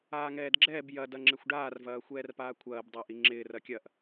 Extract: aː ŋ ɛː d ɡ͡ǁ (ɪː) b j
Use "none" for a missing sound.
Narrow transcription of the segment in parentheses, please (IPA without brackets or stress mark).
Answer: ɛː